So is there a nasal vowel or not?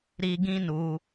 yes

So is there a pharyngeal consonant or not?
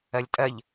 no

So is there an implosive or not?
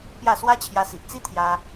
no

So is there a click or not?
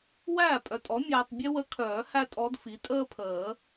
no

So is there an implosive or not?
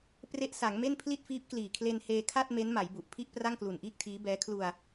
no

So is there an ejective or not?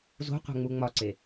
no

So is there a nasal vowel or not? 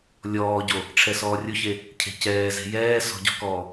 no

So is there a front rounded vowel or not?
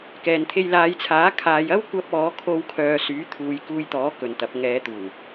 yes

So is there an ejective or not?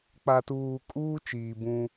yes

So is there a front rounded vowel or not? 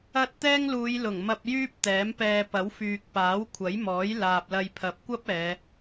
yes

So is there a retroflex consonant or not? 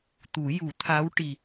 yes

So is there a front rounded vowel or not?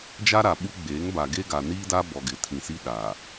no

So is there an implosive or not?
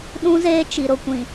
yes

